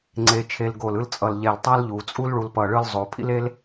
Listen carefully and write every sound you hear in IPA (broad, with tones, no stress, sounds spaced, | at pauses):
ŋ͡ǀ e˧ t͡ʃʰ e˧ l ɡ o˧˩ l ɯ˥ l t͡sʼ ʌ˧˩ l ʎ ɛ˧˩ l tˤ a˥ l ʎ u˩˧ t͡sʼ u˥ l ɭ u˧ l p ʌ˧˩ ɭ ɯ˥˧ l zˤ o˩˧ pʰ ḭ˥ l e˥ l